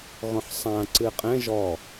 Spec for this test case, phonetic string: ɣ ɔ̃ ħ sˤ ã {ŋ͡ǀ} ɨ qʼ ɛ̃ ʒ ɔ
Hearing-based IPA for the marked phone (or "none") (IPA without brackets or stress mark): ǀ